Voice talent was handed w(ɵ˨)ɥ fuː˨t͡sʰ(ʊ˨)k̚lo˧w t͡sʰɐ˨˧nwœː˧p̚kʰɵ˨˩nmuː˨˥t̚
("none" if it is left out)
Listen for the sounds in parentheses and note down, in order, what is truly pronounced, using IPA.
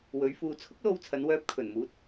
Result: ɵ˨˧, ʊ˥

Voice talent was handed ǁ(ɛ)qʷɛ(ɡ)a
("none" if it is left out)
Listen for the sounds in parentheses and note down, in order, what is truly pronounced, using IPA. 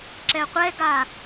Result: ɛ, ɡ

